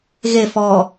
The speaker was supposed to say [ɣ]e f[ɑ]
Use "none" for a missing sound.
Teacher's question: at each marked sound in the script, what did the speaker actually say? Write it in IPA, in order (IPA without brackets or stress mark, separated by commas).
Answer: ɣ, ɔ